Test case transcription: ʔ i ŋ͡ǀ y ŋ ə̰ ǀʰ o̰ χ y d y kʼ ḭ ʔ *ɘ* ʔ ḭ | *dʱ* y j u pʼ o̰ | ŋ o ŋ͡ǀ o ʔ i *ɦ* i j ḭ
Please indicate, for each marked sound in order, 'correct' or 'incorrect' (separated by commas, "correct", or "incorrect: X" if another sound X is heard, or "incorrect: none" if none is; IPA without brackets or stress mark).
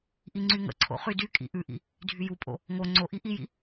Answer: incorrect: ʉ, correct, incorrect: ʔ